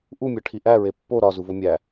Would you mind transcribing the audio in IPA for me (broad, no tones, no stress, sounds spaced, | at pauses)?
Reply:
ʔ u mʲ ɒ ʈʰ i ʔ æ ɹ e pː o ɾ ɒ z u v o mʲ æ